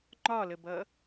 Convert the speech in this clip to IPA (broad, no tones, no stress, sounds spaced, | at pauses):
ŋ͡ǃ ɒ l ə b ʌ